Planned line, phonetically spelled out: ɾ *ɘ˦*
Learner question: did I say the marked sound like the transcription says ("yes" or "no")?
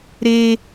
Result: no